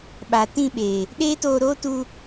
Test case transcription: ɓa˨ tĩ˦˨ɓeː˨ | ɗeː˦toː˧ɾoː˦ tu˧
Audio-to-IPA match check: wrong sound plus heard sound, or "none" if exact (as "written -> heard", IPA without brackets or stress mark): none